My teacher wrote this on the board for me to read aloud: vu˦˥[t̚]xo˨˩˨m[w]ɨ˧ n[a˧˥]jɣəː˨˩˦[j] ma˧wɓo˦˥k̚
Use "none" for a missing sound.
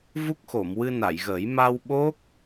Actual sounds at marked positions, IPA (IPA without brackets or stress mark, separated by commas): k̚, w, a˨˩˨, j